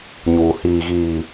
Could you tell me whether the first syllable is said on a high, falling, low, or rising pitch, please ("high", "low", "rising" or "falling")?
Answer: low